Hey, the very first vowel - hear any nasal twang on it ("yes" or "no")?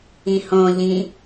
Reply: yes